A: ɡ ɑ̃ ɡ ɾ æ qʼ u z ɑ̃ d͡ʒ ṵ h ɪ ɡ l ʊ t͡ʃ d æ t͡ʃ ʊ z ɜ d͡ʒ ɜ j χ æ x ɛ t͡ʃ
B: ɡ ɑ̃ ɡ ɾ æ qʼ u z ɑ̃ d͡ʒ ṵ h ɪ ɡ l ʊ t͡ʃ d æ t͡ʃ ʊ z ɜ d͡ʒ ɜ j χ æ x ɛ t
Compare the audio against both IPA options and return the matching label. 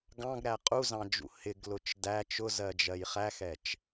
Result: A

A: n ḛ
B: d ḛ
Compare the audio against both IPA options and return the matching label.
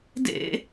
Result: B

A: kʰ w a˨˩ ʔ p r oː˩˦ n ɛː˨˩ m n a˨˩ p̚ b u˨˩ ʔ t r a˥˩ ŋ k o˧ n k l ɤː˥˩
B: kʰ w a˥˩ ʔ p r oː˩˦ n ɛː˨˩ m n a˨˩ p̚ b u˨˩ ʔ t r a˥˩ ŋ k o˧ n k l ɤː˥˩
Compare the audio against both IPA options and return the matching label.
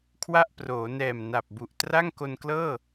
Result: B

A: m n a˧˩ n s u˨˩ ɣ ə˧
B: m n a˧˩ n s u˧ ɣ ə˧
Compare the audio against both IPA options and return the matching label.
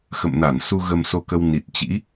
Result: B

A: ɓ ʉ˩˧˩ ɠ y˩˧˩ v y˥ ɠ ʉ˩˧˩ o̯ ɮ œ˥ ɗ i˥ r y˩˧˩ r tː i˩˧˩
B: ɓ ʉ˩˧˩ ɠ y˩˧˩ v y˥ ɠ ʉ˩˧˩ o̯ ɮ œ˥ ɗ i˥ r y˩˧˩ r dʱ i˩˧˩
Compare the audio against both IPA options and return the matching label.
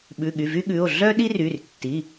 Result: A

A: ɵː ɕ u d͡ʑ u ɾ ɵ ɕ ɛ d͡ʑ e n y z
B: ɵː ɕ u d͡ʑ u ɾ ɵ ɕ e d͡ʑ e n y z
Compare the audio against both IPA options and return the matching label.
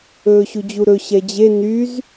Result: A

